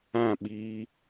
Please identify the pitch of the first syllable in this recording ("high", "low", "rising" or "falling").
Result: falling